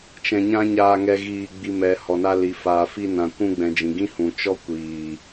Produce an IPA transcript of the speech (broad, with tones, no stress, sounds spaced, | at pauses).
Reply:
t͡ʃ ɛ̃˧ ɲ ã˦ ɲ aː˧ ŋ ɛ˧ ɣ iː˧ ɡ͡b i˧ m ɛ˨ h ɔ˨ n a˧ l i˨ f aː˨ f i˧ n ã˨ kʷ ũ˧ ɡ͡b ɛ̃˨ d͡ʒ ĩ˨ ɡ ĩ˦ h ũ˨ t͡ʃ ɔ˦ kʷ iː˨